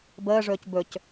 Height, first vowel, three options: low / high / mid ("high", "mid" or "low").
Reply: mid